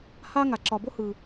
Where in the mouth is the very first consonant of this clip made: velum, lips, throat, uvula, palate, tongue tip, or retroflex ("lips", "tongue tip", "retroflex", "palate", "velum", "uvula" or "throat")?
throat